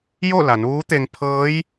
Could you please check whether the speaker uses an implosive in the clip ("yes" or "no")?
no